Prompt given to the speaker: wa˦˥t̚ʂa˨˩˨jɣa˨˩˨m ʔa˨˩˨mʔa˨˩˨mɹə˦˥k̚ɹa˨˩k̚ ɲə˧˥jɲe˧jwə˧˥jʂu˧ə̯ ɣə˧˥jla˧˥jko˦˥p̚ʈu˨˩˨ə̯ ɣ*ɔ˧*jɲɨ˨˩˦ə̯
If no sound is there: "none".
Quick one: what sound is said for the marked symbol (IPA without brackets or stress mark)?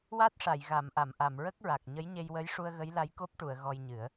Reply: ɔ˧